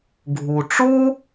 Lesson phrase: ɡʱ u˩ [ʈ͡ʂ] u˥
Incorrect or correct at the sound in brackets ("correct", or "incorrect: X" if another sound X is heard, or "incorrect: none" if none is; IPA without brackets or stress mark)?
correct